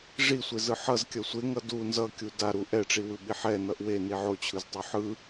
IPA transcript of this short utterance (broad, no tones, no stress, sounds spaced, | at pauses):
ʐ i sʷ e z ɯ ħ ʌ z kʲ ʌ sʷ e ŋ ʌ d u n z ʌ kʲ u d a ɾ u ʔ ɛ ʈ͡ʂ i w ɯ ɓ i ħ ɛ n ʌ ʔ w e n i ʕ o t͡ɕʰ ɯ z tˤ o ħ ɯ